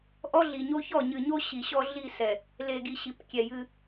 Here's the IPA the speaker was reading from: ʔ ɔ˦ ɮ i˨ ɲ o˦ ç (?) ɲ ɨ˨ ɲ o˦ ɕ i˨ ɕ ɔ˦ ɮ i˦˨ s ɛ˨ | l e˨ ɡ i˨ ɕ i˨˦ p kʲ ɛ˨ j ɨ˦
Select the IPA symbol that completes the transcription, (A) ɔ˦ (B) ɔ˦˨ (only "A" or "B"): B